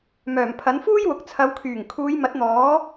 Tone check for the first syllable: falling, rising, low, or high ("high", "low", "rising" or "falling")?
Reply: low